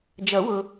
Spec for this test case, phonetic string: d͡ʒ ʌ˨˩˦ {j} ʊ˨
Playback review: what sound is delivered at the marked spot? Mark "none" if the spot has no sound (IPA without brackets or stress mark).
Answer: w